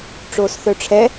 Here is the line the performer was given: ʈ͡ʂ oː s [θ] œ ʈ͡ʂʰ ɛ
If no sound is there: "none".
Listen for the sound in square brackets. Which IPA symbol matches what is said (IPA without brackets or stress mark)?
θ